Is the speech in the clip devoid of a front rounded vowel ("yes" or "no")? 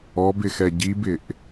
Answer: yes